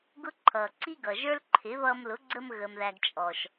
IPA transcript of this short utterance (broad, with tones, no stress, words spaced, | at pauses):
ɡʊ˦ ǃʰʌː˨ǀi˦ɡʌ˨ ʒə˞˦lǃʰɪ˨˦βʌː˧m lʊ˨˦ɡ͡ǀəː˧m ɣəː˨mðæ˨ɡ t͡ʃʼɔ˨ʃ